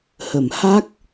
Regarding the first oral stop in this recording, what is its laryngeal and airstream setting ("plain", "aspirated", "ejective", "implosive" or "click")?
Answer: plain